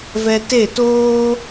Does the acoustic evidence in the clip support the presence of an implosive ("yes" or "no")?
no